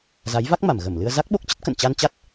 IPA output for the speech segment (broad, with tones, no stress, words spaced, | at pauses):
za˨˦jva˦˥k̚ma˧˩m ɣə˧˩mlɨ˧ə̯ za˦˥k̚ɓo˦˥k̚t͡ɕə˦˥t̚ kə̰˧˨n t͡ɕa˧nt͡ɕa˦˥t̚